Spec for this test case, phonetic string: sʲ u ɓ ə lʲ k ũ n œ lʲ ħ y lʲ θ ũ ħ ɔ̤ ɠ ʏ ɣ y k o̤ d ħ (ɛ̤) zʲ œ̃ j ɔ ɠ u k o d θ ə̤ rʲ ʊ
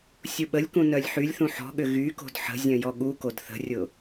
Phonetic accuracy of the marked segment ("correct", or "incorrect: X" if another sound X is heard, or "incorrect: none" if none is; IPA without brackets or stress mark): incorrect: ə̤